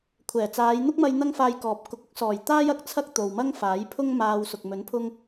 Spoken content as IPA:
kʷʰ ɛː˨˩ t͡s aː˨˧ j n̪ ʊ˥ k̚ m ɐ˧ j n̪ ɐ˥ ŋ f aː˧ j k ɔː˨ p̚ k ʊ˨˥ k̚ ʊ˥ k̚ s ɔː˨˩ j t̪ aː˥ j ɐ˨˥ k̚ t͡sʰ ɐ˥ k̚ t̪ o˨ w m ɐ˥ ŋ f aː˨˥ j pʰ ʊ˥ ŋ m aː˧ w s ʊ˨ k̚ m ɵ˨˥ n pʰ ʊ˧ ŋ

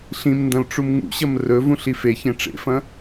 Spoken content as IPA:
ɬ ĩ m n d ɐ̃ l ʈ͡ʂ u m ŋ ṵ ɕ ɐ m r ɵ v ũ ɬ i f e ç ẽ ʈ͡ʂ ḛ f ɐ̃

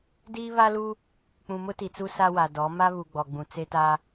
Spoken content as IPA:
d iː˦ β a˦ l u˦ | k͡p ũ˨ m ʊ˦ t i˨ t͡s u˦ s a˦ w a˨ d ɔ˨˦ m a˦ β u˨ ɡ͡b ɔ˨ ɡ͡b ũ˨ t͡s e˦ t a˦

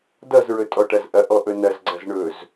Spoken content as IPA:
d ʌ z ɹ ɵ tʼ ɔ ʈ ɐ z ʔ ɐ ʔ ɔ ʔ ɵ n ɐ z ɡ͡ǀ ɐ z ɳ ɵ z

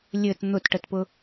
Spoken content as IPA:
lʲ ɘ t n̪ ʊ t ʈ ə t p ʊ

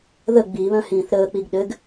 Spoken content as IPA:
ð ə ɡ͡b i β œ̃ h ĩː θ ɾ əː k͡p i ɡ ɗ ɘ ɡ

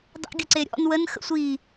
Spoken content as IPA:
dˤ ə̰ ɡʲ ə ǀ e ɾʲ ɔ̰ n w ə n x ə̰ sʷ i

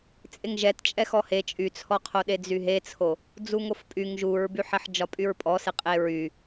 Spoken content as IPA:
t͡sʼ e ŋ ʒ ɛ t t͡ʃʼ ɛ x ɔ h e t͡ʃʼ y t͡sʰ ɔ qʰ o ɗ e d͡z y ɦ e t͡sʰ o | d͡z u ŋ o f pʼ y ŋ ʒ u ɹ b y ħ ɛ ħ d͡ʒ ɒ pʼ y ɹ pʼ ɔ s e qʼ e ɹ y

